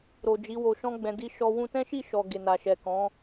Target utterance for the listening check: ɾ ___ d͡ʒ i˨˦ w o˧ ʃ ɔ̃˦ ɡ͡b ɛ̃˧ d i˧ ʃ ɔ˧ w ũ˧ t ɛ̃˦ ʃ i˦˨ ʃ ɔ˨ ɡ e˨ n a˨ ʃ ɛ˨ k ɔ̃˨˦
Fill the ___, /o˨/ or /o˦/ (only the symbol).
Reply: o˨